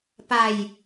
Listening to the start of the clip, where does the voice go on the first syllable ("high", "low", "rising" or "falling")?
low